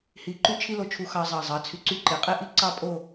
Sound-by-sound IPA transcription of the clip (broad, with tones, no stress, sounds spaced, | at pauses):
h i˧ ǃ y˥˧ t͡ʃʰ i˥ l o˧ t͡ʃʰ u˧ x ɑ˧ zˤ ɑ˧˩ zˤ ɑ˩˧ t͡sʰ y˧˩ ǀ y˥ ǃ e˩˧ qʼ e˥˧ ʔ i˥˧ ǀ ɑ˥˧ pʼ o˥˧